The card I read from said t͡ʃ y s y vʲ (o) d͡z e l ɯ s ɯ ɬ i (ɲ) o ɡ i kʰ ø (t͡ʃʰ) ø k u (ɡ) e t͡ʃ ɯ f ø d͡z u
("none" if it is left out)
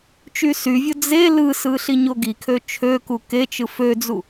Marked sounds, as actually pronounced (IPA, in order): o, ɲ, t͡ʃʰ, k

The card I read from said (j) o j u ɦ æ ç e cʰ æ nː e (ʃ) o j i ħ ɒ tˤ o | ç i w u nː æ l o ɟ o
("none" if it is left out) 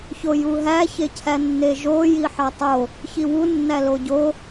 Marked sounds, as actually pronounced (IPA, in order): ç, ʒ

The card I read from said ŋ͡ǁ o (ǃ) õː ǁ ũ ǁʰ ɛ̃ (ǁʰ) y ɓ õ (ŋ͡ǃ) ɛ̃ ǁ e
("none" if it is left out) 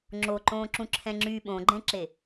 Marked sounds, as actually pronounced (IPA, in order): ǃ, ŋ͡ǁ, ɡ͡ǃ

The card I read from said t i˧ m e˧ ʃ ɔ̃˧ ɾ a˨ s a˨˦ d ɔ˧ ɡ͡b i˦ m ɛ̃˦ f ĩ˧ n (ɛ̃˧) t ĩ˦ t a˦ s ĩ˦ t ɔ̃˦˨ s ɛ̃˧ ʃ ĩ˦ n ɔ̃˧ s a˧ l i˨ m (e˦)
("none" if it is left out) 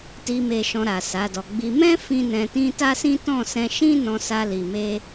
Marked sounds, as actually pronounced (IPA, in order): ɛ̃˧, e˧

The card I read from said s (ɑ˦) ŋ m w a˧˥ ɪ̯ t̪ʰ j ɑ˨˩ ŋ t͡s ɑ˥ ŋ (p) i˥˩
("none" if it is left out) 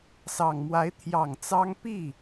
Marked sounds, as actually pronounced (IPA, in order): ɑ˨˩, p

